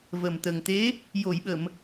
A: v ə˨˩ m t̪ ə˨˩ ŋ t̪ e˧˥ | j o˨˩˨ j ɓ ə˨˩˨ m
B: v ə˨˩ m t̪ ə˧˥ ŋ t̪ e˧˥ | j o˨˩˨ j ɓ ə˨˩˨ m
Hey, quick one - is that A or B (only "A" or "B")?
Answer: A